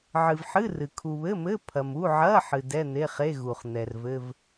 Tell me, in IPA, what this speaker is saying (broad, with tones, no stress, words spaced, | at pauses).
ʕɨ˨vħɨ˧˥˧ rɨ˨ kʰu˨βɘ˧˥˧mɘ˧˥˧ pʰɐ˨mu˧˥˧ ʕɐ˧˥˧ ħɨ˨dɛ˧˥˧ n̪e˧˥˧χe˧˥˧ ɣu˨χn̪ɛ˨rvɘ˧˥˧v